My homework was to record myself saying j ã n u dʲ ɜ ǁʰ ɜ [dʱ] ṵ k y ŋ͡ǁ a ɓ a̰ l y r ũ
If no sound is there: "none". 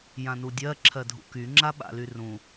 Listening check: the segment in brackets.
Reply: dʱ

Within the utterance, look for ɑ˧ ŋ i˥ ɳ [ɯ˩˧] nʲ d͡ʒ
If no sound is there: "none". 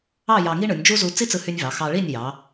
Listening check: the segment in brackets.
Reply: ɯ˩˧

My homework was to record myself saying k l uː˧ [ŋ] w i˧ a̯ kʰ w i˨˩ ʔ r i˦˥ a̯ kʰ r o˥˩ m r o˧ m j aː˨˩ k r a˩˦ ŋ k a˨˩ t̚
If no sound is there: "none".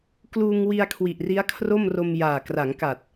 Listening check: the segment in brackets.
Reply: ŋ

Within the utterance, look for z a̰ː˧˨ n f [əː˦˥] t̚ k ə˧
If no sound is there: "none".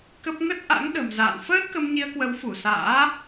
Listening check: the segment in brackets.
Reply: əː˦˥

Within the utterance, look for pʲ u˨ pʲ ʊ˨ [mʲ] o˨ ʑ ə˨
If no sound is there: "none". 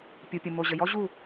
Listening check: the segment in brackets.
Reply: m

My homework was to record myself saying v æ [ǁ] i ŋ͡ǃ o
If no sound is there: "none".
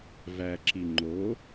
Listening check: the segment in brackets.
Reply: ǁ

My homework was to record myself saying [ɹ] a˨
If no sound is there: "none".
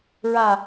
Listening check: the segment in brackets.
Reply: ɹ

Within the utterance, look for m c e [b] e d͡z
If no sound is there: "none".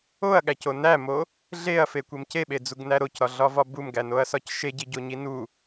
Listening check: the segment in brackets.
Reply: ɓ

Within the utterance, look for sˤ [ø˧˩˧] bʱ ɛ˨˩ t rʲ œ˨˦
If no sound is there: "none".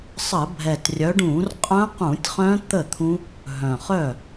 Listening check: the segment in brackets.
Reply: ə˧˩˧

